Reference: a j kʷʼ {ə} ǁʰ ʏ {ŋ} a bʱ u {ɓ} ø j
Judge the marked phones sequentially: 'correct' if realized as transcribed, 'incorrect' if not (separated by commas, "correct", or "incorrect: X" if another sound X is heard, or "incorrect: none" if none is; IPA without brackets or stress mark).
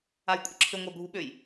correct, incorrect: ŋʷ, correct